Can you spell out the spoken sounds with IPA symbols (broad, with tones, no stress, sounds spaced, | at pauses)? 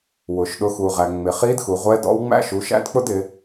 w ʊ˩ ʃ ɗ ʊ˩˧ x u˩ ʁ æ˩ ŋ͡m ɪ˩ χ i˧˥ d x u˩ ʁʷ ɛ˧˥ d ɔ̰˧˥ w ŋ͡m æ̰˥ ʃ u˩˧ ʃ æ̰˥ d k͡p ʊ˥ d ɪ˩˧